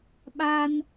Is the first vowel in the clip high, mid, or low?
low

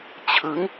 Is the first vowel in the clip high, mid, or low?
high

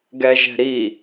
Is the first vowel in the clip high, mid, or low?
mid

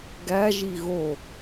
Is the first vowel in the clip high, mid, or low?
low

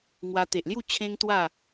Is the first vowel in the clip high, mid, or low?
low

